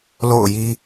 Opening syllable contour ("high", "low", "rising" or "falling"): falling